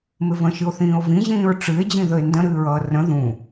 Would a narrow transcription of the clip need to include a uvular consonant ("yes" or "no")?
no